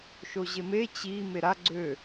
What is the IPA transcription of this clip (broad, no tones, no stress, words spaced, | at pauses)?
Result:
ʃoʑeme t͡ɕi meɾa ɡ͡ǀø